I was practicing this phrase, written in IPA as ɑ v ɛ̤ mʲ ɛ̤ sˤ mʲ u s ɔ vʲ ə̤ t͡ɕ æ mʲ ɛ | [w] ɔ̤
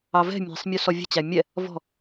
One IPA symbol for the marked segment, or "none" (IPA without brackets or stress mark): v